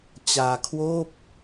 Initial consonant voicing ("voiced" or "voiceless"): voiceless